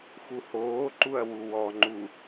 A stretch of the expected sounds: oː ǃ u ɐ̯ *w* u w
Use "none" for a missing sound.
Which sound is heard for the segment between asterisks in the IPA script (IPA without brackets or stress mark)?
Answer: w